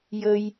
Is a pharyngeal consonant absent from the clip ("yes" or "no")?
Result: yes